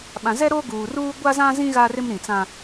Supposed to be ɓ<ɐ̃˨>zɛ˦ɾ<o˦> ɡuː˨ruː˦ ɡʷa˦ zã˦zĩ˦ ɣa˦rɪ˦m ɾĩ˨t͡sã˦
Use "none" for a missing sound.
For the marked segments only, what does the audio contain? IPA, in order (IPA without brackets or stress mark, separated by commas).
ã˨, o˦